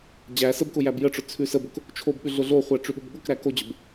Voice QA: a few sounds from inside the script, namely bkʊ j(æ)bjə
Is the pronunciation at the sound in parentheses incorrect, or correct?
correct